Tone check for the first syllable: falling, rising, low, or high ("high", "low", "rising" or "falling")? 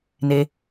high